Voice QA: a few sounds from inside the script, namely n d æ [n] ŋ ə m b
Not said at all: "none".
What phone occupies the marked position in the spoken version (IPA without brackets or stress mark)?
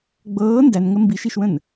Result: n